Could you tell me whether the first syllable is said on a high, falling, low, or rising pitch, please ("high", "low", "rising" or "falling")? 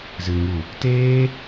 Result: low